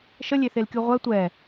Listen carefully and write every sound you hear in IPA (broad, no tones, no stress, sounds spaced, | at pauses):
ʃ ə lʲ e θ e l kʲ u ʁʷ ɛ tʷ ɛ